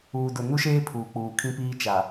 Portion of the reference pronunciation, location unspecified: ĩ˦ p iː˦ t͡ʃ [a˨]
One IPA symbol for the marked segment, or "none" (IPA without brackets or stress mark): a˨